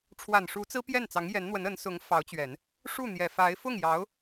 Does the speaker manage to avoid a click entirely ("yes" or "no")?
yes